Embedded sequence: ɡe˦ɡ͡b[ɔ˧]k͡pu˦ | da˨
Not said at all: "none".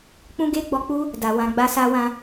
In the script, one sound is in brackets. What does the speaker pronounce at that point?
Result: ɔ˧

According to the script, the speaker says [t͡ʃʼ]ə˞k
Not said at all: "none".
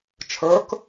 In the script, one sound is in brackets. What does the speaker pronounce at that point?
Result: t͡ʃʰ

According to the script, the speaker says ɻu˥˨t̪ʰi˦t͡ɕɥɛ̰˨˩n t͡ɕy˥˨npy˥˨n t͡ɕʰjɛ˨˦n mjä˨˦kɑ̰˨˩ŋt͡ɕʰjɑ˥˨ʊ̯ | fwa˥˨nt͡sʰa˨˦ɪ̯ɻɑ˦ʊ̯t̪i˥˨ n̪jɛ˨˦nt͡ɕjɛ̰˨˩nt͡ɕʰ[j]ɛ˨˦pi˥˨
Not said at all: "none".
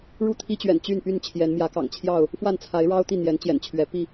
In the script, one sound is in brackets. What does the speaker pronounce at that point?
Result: ɥ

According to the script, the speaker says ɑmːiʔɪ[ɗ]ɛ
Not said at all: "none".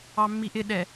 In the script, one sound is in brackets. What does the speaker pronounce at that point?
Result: ɗ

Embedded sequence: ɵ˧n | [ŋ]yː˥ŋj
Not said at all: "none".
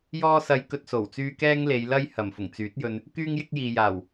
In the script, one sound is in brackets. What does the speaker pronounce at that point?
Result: k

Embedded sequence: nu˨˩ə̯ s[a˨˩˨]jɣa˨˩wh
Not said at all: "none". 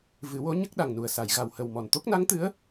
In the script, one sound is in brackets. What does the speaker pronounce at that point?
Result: a˨˩˨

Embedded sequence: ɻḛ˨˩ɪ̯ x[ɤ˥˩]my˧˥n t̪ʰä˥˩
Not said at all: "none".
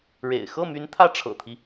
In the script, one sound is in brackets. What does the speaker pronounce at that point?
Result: ɤ˥˩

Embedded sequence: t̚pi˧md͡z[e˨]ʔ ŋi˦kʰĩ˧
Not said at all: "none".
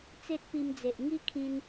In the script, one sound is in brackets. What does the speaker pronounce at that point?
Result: e˨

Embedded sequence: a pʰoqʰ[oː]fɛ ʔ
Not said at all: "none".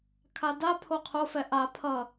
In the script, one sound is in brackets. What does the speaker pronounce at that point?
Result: o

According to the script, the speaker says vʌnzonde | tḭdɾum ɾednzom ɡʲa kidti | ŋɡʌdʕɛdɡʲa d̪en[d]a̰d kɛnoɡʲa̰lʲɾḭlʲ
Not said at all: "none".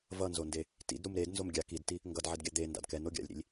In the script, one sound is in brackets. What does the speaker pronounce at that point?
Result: d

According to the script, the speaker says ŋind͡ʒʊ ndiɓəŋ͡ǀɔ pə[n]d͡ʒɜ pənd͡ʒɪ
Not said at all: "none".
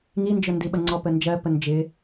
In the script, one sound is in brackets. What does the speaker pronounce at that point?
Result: n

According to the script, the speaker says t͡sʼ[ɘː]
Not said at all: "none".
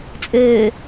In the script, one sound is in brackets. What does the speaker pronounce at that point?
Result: ɘː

